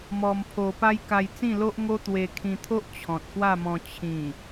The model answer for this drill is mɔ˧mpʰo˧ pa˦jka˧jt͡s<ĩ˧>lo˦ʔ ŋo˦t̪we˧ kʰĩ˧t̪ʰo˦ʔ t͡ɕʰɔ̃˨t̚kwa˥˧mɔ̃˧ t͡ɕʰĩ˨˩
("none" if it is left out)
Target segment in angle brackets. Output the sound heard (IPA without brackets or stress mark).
ĩ˥˧